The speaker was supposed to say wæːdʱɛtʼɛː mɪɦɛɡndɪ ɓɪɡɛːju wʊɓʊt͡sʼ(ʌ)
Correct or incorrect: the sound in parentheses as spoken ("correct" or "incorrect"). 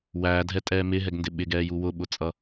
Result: correct